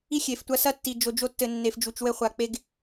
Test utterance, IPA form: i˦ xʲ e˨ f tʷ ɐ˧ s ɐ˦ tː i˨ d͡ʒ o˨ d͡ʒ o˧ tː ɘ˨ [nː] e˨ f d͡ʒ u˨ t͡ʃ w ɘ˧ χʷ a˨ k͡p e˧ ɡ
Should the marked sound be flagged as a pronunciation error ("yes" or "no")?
no